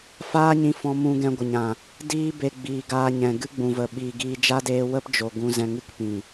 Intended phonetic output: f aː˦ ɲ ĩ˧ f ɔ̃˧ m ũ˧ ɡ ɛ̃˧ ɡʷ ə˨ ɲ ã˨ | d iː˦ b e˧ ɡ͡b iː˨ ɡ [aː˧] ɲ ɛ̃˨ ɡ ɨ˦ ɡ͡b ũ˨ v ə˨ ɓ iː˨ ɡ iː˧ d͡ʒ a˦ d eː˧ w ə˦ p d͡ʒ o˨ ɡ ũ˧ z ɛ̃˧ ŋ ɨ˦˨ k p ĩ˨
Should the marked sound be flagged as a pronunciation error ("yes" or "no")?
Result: no